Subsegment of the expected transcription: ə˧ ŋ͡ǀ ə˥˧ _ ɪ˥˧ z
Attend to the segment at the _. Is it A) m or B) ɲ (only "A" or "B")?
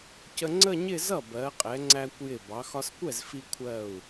B